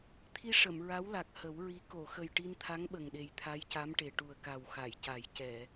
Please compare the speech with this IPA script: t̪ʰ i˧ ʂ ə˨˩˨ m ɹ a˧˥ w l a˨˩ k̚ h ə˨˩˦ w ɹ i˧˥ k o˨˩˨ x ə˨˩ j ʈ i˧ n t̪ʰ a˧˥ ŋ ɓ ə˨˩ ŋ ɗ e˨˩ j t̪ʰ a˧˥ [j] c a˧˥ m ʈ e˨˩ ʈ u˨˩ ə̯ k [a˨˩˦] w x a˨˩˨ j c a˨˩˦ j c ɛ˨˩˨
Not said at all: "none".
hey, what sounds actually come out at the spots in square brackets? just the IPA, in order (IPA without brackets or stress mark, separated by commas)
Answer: j, a˨˩